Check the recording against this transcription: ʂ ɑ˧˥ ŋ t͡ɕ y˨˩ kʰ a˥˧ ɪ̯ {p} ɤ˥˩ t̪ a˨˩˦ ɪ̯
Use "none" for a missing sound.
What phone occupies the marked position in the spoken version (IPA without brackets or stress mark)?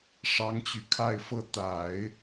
f